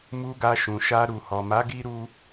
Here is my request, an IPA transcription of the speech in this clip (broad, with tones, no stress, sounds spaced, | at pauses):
m u˧ ɡ a˧ ʃ ũ˨ ʃ a˧ ɾ u˨ h ɔ˨ m a˨˦ ɡ i˦ ɾ u˦